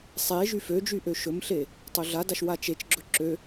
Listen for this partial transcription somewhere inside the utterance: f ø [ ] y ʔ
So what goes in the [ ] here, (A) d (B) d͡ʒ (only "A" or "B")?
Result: B